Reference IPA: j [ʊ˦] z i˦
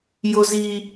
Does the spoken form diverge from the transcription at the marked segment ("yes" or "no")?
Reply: no